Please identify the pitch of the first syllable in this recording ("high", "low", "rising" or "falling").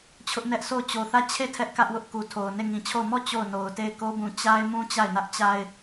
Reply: high